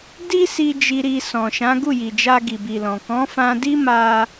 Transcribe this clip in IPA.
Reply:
di˦si˧ d͡ʒi˧ɾi˧sɔ̃˨ʃã˨˦ ɡu˦˨ji˨d͡ʒa˧ ɡi˨bi˨lɔ̃˨ kɔ̃˨˦fã˧di˦ma˧

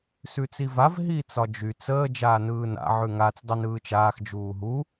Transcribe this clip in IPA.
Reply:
sʉt͡sivav ɦiːt͡sɒd͡ʒy t͡səː d͡ʒaːnɯːna̰ ʕʉŋat͡s dˤinɯːt͡ʃaːx d͡ʒuːɦu

